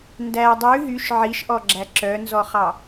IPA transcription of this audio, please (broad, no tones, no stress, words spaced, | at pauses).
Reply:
ndæ dˤʉ ɦyʃ ʕiʃʔɔɡ͡ǁæ ǁœnzɔχɑ